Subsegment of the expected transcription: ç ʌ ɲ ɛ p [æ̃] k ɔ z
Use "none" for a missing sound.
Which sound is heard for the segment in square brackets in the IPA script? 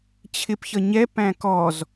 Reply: æ̃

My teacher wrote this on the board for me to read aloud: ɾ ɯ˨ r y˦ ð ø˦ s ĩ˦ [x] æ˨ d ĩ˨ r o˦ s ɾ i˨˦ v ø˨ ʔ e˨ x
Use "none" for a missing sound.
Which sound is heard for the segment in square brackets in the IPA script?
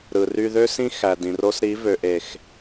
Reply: x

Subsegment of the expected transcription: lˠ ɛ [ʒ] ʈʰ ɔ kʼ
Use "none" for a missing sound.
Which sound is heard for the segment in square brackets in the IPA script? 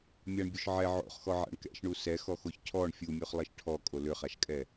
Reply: ʃ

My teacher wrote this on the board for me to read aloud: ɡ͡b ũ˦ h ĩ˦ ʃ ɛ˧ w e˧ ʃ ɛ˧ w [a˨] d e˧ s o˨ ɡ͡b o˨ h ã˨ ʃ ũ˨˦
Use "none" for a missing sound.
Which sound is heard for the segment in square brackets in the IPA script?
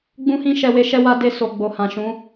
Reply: a˧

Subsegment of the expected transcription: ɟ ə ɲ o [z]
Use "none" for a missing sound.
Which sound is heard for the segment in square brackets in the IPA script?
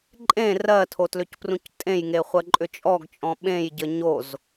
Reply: z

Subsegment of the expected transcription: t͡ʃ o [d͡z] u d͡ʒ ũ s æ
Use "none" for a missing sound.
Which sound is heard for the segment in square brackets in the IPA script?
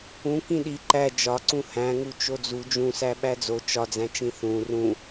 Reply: d͡z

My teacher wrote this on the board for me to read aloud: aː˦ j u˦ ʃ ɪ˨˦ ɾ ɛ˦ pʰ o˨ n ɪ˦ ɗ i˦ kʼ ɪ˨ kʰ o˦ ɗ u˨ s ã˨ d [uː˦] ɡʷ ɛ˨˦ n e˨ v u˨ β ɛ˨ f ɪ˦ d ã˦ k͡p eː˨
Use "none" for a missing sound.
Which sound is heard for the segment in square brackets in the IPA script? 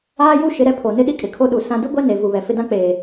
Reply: u˦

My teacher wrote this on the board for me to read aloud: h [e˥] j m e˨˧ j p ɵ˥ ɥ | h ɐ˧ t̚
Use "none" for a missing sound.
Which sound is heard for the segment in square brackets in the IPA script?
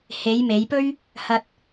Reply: e˨˧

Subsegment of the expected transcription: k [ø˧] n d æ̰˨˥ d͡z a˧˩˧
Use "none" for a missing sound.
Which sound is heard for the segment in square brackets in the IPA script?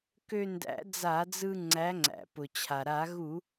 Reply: ø˧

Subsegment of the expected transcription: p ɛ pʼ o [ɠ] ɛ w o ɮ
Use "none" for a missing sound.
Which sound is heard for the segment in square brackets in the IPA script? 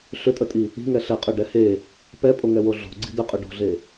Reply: ŋ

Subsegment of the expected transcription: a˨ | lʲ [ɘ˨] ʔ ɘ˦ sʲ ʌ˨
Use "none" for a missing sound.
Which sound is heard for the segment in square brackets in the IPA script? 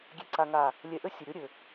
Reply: ɛ˨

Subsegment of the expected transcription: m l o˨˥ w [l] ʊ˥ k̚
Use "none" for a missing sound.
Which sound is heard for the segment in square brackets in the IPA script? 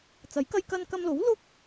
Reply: l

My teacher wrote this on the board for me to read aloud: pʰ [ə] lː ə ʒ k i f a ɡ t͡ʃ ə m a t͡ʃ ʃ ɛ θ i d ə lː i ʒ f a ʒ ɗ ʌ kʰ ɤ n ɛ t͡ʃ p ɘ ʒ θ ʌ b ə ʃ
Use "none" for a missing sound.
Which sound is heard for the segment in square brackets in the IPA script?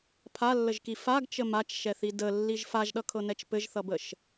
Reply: a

